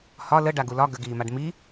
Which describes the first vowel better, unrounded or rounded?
rounded